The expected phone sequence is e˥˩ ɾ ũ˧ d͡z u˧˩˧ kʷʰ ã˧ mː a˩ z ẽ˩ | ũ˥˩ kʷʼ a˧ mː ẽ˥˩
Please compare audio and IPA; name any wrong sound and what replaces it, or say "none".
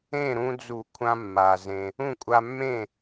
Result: e˥˩ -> ẽ˥˩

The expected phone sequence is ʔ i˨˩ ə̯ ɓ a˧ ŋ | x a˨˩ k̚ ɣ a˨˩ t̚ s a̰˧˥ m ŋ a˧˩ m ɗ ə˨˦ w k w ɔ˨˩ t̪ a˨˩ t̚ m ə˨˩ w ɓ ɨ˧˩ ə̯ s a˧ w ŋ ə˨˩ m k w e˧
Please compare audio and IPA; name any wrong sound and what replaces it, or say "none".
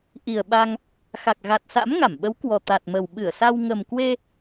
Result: ɗ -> ɓ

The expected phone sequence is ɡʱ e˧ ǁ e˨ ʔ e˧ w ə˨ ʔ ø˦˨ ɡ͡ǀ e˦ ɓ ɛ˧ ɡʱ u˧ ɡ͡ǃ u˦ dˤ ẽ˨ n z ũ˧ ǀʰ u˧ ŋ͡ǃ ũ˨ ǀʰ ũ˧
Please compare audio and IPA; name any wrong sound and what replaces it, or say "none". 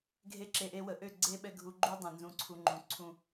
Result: none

